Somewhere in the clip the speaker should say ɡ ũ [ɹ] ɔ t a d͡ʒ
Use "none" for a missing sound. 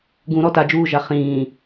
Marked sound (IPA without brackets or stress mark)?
ɾ